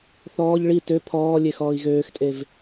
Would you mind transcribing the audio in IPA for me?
θɔːʎ ɭi tø pʰɔː lʲexɔːi̯ɣøːxtʼev

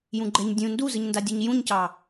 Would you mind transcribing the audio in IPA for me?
jũɡ͡ǃɛɲ dʲũ nduzɯɲndadʲoɲ jũɲcɑ

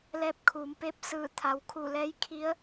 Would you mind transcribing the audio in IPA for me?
lɛː˧˥p̚kʰuː˩˧mpe˧˥p̚ sɯː˧˩t̪ʰa˩wkʰu˧˩ lɛː˧˥jkʰi˧˥ə̯

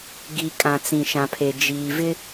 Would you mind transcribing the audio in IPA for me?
ɡi˨kʼã˨ t͡sĩ˨ʃã˨pʰe˨ d͡ʒiː˨vɪ˦

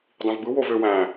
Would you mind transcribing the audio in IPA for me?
dˤĩvbɯ wovøwæ̃

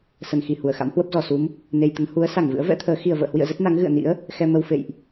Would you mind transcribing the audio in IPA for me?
sə˨˩nxi˧˩hu˧˩ə̯ xa̰˧˥mhwə˦˥p̚zɔ˨˩ su˨˦m | ne˧jt̪ə˨˦n hu˨˦ə̯sa˧˩ŋvɨ̰˧˥ə̯ vɛ̰˧˥t̪ʰəː˨˦ xi˨˩ə̯və̰ː˧˨hwḭ˧˨ə̯ zə˦˥t̚na˨˦ŋ ɣɨ̰˧˨ə̯ nḭ˧˥ə̯ | xɛ˧mə˧w fḛ˧˨jʔ

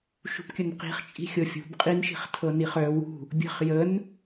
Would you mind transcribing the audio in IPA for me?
ʃṳpkʲənqi̤χt͡ʃʼi̤ xʲɤfʲṳb qʼinʃi̤χ tʰɤniχœ wṳ | bʲə̤χ jən

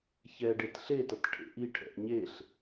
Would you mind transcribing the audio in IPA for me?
çɛɖet ɬetʌt ʈʰḛʔiʈʰɛ̰ʔ ɲeɬ

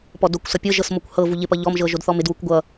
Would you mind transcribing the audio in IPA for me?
pɔdokʷsʌ pʲɤʒɤs mokʷhɤvu ʎɪpʌ ʎɔmʒɤ ʒodθɔmɪdwukʷ ɡʷʌ

